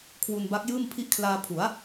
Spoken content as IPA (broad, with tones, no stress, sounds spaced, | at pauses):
kʰ w u˧ n b a˦˥ k̚ j ɯː˥˩ m pʰ i˦˥ ʔ kʰ l aː˧ pʰ u˩˦ a̯